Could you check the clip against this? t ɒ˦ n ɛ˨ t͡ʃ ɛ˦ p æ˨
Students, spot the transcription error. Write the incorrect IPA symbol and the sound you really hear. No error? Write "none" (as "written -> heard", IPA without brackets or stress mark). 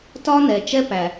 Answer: none